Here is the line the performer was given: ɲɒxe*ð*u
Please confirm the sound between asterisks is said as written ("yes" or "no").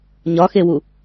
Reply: no